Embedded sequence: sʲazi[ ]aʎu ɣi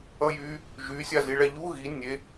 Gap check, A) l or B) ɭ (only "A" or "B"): B